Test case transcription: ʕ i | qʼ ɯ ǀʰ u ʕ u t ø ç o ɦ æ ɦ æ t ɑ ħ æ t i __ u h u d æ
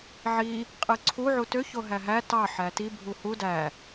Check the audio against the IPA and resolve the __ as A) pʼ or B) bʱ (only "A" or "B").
B